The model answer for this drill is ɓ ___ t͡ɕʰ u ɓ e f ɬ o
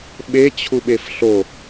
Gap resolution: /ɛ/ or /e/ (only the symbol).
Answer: e